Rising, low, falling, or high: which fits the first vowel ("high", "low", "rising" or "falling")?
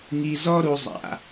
low